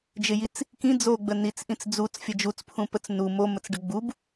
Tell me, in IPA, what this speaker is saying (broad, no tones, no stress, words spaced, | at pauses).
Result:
d͡ʒɪjit͡s | kĩ d͡zoɡ͡bə nit͡sʔĩt͡s d͡zut͡sfʲə d͡ʒut͡spʰũpət͡s nu momət͡sɖə ɡ͡bub